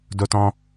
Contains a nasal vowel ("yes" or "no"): yes